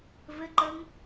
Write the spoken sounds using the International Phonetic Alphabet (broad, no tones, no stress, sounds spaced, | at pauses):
v ɘ ǃ ə ŋ